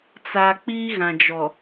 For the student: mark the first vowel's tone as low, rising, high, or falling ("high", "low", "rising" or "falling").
low